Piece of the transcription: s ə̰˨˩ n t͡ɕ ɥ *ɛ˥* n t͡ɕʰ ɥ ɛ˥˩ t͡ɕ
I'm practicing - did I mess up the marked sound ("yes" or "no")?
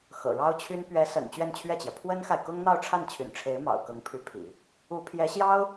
yes